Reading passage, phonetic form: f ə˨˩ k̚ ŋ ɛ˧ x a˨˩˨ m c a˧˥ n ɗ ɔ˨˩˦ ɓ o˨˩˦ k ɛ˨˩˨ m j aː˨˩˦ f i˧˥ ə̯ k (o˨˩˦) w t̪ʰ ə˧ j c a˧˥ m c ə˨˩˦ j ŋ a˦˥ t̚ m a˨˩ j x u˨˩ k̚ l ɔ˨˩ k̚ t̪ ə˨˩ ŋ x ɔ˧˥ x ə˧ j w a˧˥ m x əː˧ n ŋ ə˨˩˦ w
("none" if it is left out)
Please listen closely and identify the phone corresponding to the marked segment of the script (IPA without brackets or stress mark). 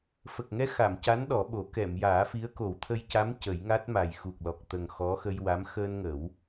o˨˩˦